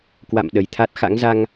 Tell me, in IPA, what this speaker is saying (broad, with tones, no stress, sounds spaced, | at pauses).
k w a̰˧˨ m ɗ ə˨˩ j t̪ʰ a˦˥ t̚ x a̰˧˥ ŋ z a˧ ŋ